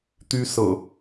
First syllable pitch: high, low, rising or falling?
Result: high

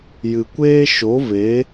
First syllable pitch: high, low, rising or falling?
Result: low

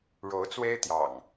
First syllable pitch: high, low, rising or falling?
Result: rising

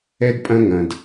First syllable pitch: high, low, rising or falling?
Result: high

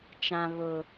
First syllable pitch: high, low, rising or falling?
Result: low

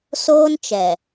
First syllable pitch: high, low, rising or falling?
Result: high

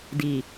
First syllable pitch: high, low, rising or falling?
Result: low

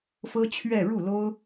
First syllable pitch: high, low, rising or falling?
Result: high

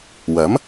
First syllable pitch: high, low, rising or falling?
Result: rising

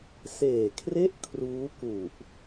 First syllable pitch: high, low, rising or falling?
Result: low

